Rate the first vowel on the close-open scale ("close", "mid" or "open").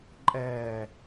mid